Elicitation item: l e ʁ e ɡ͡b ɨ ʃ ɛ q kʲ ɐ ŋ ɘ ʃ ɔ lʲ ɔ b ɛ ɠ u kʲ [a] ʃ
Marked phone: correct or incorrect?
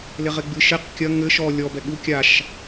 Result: correct